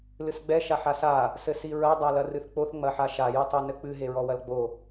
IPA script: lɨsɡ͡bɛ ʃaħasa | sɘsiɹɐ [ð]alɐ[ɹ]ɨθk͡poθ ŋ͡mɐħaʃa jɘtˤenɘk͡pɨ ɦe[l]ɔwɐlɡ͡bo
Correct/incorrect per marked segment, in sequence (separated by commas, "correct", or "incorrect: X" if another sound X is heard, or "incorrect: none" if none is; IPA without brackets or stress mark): incorrect: dˤ, incorrect: r, incorrect: ɹ